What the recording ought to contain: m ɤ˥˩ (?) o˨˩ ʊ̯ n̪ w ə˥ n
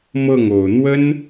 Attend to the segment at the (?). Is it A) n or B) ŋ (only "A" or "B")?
B